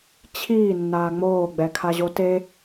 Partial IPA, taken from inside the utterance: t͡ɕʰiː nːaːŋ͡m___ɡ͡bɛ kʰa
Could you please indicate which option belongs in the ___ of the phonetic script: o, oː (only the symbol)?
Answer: oː